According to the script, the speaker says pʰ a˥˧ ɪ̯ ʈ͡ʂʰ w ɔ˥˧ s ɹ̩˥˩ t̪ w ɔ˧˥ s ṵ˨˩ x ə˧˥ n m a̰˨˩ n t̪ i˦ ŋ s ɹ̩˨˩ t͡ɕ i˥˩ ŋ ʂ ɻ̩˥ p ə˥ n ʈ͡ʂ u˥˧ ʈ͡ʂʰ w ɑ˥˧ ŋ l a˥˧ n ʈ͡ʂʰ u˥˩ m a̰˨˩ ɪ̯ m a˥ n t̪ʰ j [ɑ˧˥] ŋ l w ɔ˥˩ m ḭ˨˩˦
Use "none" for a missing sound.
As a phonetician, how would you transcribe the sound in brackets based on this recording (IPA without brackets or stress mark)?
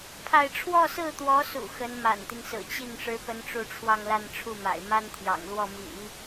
ɑ̰˨˩